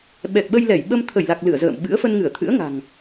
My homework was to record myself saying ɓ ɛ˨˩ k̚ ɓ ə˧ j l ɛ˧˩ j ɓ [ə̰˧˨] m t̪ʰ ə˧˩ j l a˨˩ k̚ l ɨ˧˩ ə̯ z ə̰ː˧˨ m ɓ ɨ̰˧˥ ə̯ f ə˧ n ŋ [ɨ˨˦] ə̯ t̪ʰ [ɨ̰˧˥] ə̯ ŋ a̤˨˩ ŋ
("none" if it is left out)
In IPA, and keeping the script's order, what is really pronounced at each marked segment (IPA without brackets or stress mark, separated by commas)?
ə˧, ɨ˧˩, ɨ̰˧˥